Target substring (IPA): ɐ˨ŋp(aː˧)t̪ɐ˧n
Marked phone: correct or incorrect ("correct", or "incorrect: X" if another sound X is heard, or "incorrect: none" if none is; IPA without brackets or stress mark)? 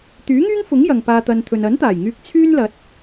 correct